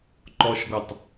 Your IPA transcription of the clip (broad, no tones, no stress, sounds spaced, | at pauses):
ǃ ɔ ʃ ɡ ɔ tˤ